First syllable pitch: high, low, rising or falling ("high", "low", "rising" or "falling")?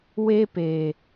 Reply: high